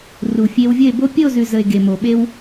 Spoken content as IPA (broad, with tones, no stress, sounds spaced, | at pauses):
r u˨ fʲ e˧ w vʲ ə˦˨ e̯ b o˦ pʲ ə˦˨ o̯ z ʉ˨ z ə˨ e̯ ɡ e˨ m o˨ ɓ e˦ w